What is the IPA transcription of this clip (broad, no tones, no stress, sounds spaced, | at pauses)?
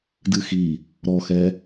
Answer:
d ɨ x i | ɾ ɔ x ɛ